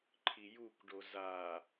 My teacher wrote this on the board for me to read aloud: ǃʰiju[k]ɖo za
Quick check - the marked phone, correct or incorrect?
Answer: correct